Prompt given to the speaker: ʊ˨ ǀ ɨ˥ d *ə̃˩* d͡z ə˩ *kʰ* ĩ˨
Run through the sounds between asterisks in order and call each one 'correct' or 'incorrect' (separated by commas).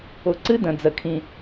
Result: correct, correct